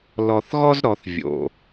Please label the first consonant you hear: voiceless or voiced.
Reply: voiced